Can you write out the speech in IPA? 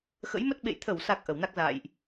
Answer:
x ə̰˧˥ j m ə˦˥ t̚ ɓ ḛ˧˨ j t̪ʰ ə˧˩ w s a˨˩ k̚ ʔ ə˧˩ w n a˦˥ k̚ z a̰ː˧˨ j ʔ

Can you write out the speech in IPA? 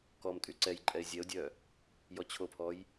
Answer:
k ɔ m tʼ y ǀ ɛ j ǃʼ ɛ ɪ̯ zʲ ɛ ʊ̯ dʲ œ | j ɔ t͡ɕʰ o pʰ ɔ j

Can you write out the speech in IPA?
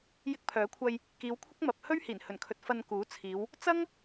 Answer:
j ɪ˧ k̚ pʰ œː˨˥ kʷʰ ɐ˧ j | k iː˨˧ w kʷʰ ɐ˥ k̚ m ɐ˨ p̚ h ɵ˥ ɥ h iː˨˩ n h ɵ˨˩ n kʰ ɵ˨ t̚ f ɐ˧ n k uː˨˥ t͡sʰ iː˨˧ w | t͡s ɐ˥ ŋ

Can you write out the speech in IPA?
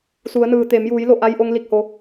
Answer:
s u˩˧ ə̯ n ɯː˩ t̪ e˩˧ m j uː˩˧ j l o˧˩ ʔ a˧ j ʔ o˧ ŋ l i˧˩ k̚ h o˩˧

